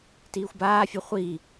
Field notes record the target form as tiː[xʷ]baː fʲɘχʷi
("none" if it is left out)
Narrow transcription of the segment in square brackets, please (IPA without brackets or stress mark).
xʷ